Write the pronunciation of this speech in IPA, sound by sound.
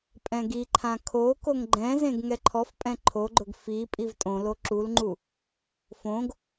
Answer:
pʼ ɛ̃ ɡ i ǃʰ ã kʰ o k o ŋ ɡ͡ǃ ɛ̃ z ẽ ɡ ŋ ɛ ǃʰ ɔ f pʼ ɛ̃ ǃʰ o ɡ͡ǃ ʊ ɡ f i pʼ i v tʼ õ l o ǁ u l ŋ͡ǃ u | f õ ɡ

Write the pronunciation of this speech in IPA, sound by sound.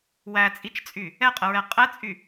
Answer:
w æ t͡sʼ i t͡ʃ t͡sʼ y | ɛ qʼ ə ɹ ɛ qʼ ɛ t͡sʼ y

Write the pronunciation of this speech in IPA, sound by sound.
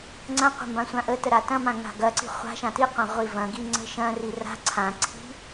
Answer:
ŋ͡ǀ ɐ̃ qʷ ə̤ m b ã sʷ ã ʔ ə t ə ɾ a t ɐ̃ m ã ŋ a̤ ɡ ɐ ǀ i̤ χʷ a̤ ʃ ã t i qʷ ã ʁʷ i v ɐ̃ ɡ i ŋ͡ǀ ə̤ ʃ ɐ̃ r i r a̤ ǀʰ ã ǀʰ i̤

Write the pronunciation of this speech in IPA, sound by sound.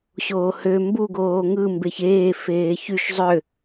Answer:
ɕ oː h ø m b u ɡ oː ŋ ɯ m b e ç eː f eː ç y ʃ zˤ ø

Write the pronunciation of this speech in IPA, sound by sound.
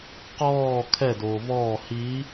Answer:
q ɔː kʰ ɛ d oː v ɔː h i

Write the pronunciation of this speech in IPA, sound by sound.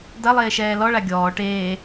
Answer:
d ɐ lˠ eː ʃ ɛː l ɔ ɭ a ɡʲ ɔː ʈ eː

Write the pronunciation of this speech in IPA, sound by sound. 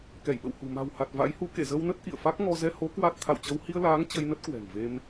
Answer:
k ɛ˧˩ j ɓ ə̰˧˨ w h ṳ˨˩ m a̤˨˩ w h a˨˩ t̚ v a̰˧˥ j h u˨˦ k ḛ˧˨ z ə˧ w n ə˦˥ t̚ ʔ ḭ˧˨ ə̯ f a˦˥ k̚ ŋ ɔ˧ z ɛ˧ h o˨˦ k w a˦˥ t̚ t̪ʰ a̰˧˨ w t͡ɕ ə˧ w h i˧ ə̯ l aː˨˦ ŋ t͡ɕ ə˧ j n ə˦˥ t̚ k w ɛ̤˨˩ ŋ v e˧ m

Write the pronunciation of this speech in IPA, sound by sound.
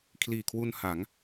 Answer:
kʰ l iː˨˩ kʰ w u˧ n h a˩˦ ŋ

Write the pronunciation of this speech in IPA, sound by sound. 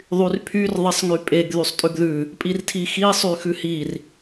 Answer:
ðˤ y r pʰ y r ðˤ e sˤ ŋ y pʼ e ɡ ð y sˤ tʼ ʉ ɡ ð ʉ | pʼ i r tʰ i x i sˤ y x ʉ h i r

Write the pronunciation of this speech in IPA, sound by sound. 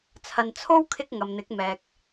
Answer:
t͡sʰ ɐ˨ n t͡sʰ o˥ w kʰ ɪ˥ k̚ ŋ ɐ˨ m n̪ ɪ˨˥ k̚ m ɛː˨ k̚

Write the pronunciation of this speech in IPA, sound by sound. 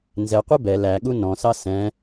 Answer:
n z ɛ qʷ i b ɛ l æ ɠ u n ɔ̃ s ɑ s ɛ̃

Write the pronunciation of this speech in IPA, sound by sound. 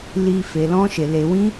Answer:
l i˧ f e˧ l ɔ̃˦ ʃ e˧ l e˧ w ĩ˦

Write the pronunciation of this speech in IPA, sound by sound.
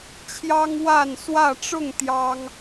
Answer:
t͡ɕʰ j ɑ˦ ŋ w a˥˨ n s w ä˥˨ ʈ͡ʂ ʊ˥˨ ŋ t̪ j ɑ˦ ŋ

